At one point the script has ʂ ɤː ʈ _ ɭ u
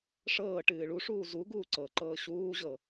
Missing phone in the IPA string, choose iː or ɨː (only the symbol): ɨː